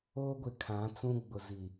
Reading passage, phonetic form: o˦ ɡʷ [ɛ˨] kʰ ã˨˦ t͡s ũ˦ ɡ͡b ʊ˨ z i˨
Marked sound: incorrect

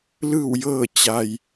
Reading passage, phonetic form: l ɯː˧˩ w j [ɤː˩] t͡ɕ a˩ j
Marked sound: incorrect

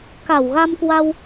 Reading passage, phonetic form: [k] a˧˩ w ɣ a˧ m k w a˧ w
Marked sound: correct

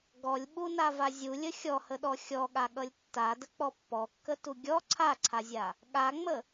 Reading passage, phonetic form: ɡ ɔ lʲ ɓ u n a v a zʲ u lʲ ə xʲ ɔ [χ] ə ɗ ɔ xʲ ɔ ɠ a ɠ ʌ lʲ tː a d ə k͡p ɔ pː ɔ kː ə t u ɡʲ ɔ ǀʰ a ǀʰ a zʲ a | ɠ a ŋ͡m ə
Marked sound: incorrect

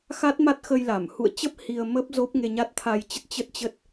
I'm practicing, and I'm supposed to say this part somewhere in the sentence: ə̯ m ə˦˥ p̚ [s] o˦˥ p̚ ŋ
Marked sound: incorrect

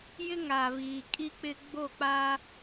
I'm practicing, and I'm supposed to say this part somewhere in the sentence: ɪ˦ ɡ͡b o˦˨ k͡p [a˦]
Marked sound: correct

